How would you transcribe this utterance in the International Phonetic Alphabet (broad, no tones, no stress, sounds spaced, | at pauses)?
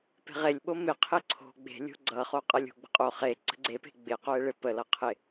p e̤ ʁ e lʲ ɓ o m ɪ qʰ ɪ ǀʰ o̤ ɡ͡b e̤ lʲ o̤ ɡ͡ǀ ʌ χ o qʼ ʌ lʲ o̤ ɡ͡b ə̤ qʼ o χ e ǀ ə̤ ɡ͡ǀ e p e̤ ɡ͡b ɪ q o e̯ ɭ ɪ p ə l ʌ qʰ ɪ